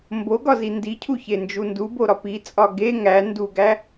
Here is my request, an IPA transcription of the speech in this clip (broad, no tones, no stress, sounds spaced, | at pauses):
m b o ɡ ɒ z i n d i cʰ u ç e n d͡ʒ u n d u b o ɾ ɒ p i t͡sʼ ɒ ɡ e ŋ æ n d u ɡ æ